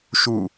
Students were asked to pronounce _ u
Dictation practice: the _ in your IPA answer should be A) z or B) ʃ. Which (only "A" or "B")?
B